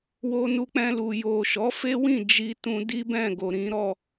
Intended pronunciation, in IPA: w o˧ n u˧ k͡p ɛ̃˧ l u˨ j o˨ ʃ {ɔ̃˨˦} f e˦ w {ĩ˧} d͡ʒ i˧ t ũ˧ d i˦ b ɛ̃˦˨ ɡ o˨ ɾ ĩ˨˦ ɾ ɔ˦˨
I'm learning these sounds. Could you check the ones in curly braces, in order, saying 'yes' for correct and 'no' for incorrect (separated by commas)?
no, no